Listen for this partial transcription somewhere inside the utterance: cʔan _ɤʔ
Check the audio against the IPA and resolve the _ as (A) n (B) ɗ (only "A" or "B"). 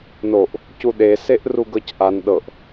B